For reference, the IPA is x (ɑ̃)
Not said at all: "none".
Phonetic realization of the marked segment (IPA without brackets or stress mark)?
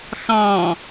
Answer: ɑ̃